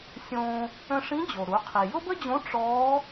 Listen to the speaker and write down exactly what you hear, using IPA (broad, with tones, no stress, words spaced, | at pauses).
sʲõː˧ | ə̃˧ʂĩ˧˥d͡ʑo˩ ɾu˩˧qʰi˩ jʊ˥bə˥d͡ʑõ˧˥ ʈ͡ʂɔː˧˥